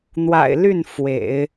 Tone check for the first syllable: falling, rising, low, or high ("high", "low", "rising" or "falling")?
low